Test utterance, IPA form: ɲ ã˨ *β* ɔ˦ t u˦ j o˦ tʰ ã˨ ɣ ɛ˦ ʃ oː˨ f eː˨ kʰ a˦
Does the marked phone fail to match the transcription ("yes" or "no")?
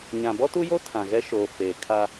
yes